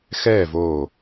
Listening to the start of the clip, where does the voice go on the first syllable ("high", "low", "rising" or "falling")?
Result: falling